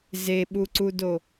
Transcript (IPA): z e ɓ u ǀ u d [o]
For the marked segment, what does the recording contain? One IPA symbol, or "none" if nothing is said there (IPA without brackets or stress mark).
o